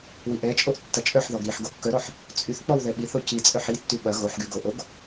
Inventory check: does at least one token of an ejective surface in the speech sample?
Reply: yes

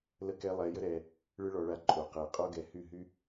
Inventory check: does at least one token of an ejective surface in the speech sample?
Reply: yes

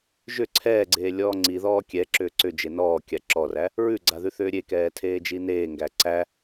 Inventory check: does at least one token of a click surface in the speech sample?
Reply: yes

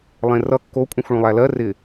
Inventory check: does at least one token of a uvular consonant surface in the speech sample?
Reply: no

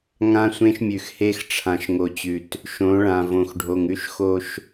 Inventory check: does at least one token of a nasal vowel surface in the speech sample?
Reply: yes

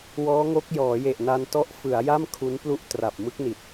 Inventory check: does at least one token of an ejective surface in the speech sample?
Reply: no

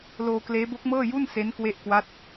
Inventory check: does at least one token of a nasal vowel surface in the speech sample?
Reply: no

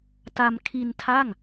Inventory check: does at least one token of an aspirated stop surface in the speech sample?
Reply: yes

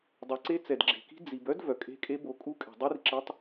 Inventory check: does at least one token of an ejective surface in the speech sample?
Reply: yes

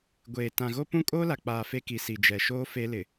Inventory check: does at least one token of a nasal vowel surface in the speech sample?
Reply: yes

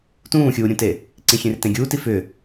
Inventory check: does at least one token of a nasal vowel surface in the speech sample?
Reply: yes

